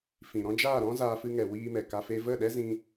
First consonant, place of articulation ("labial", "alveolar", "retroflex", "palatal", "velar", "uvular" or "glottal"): labial